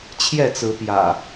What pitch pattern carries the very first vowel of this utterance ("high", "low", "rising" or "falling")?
falling